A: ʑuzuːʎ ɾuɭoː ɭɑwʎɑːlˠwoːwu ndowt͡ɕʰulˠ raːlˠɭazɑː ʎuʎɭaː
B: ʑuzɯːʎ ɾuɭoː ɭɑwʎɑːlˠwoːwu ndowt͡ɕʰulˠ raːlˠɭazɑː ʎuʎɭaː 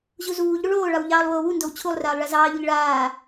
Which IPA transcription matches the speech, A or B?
A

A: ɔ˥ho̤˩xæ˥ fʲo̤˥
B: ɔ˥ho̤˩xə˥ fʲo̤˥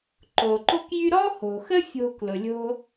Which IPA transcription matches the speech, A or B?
B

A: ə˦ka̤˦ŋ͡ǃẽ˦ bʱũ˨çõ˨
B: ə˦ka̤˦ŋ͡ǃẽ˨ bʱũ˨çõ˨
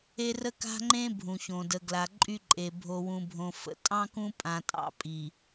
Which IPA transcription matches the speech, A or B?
A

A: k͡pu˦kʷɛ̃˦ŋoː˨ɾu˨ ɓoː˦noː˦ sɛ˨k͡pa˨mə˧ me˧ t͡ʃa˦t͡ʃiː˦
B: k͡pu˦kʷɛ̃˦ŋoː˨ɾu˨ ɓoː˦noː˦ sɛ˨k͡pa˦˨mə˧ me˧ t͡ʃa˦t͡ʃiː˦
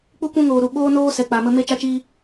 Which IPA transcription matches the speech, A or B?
A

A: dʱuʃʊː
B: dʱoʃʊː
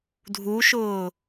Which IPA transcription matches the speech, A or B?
A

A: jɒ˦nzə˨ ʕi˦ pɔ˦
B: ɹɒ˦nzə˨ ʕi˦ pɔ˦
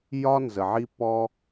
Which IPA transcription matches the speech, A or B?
A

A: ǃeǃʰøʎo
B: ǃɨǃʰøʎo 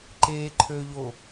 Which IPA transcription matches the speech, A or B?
A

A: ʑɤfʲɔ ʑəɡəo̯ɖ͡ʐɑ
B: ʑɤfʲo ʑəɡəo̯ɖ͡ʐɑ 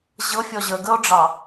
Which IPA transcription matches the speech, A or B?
A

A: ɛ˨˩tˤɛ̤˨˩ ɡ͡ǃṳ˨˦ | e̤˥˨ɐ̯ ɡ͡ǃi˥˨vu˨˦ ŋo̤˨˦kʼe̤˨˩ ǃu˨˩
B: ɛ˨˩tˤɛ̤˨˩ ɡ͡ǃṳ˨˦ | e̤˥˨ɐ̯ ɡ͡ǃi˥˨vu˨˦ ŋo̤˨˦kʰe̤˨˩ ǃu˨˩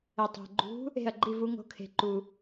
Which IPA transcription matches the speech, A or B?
B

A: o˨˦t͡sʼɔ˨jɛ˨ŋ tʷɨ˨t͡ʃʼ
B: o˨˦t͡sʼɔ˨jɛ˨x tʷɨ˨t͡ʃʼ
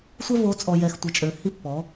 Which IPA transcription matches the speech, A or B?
B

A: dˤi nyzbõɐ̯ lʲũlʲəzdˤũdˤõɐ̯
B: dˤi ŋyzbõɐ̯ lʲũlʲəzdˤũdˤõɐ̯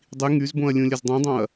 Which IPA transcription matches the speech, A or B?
B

